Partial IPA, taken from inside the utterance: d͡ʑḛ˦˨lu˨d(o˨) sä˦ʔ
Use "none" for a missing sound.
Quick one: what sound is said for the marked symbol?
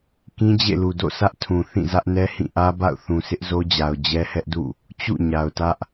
o̰˦˨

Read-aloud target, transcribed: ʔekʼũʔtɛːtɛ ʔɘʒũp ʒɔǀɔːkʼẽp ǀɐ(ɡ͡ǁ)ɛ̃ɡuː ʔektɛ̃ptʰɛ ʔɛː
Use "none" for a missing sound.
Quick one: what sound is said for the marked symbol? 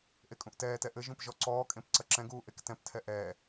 ǁ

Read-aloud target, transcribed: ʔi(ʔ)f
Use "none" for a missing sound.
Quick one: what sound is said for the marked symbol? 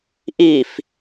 none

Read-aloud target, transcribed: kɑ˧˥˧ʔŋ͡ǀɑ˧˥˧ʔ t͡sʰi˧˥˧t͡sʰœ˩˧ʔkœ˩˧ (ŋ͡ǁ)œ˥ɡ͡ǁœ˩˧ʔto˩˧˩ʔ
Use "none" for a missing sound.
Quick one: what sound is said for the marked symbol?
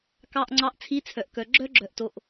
ɡ͡ǁ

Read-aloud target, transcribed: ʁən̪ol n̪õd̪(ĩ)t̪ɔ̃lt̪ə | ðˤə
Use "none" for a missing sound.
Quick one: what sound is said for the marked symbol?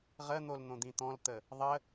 ĩ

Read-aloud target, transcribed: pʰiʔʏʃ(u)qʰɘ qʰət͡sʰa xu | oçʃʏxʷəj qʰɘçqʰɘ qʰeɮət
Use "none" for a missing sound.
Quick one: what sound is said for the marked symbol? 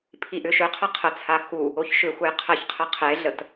ʏ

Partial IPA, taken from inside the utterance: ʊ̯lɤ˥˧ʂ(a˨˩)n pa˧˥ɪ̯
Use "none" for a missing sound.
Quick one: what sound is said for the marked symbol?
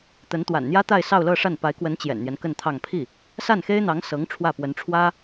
a˥˩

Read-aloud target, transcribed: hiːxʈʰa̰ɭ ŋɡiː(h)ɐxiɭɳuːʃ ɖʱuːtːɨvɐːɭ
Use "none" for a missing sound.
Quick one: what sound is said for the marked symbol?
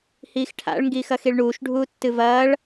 x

